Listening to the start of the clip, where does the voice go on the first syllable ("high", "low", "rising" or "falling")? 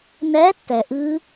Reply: rising